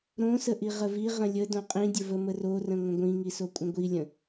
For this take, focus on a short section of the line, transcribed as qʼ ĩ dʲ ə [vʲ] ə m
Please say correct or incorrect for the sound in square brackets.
incorrect